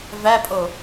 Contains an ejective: yes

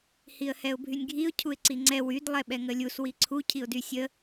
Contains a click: yes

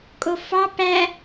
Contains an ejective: yes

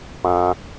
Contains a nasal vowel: yes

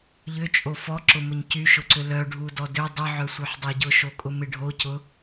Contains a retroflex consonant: yes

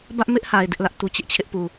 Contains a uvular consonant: no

